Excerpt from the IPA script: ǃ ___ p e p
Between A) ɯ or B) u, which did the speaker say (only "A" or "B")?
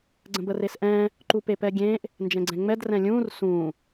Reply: B